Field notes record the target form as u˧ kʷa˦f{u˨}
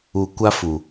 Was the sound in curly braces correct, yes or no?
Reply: yes